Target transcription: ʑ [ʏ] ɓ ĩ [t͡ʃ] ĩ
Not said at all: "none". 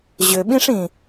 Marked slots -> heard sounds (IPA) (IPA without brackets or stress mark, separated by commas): ʏ, ʂ